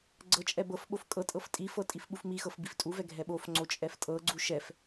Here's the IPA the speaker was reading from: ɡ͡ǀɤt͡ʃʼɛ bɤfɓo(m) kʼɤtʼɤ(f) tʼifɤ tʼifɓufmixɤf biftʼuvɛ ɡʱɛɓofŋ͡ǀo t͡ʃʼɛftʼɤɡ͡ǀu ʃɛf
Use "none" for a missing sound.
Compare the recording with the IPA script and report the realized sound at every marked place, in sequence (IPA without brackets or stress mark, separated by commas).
f, f